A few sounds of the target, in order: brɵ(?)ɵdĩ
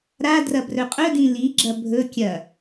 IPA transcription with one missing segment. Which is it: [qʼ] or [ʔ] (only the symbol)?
qʼ